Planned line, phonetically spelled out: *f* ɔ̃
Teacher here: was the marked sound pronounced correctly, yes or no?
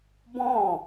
no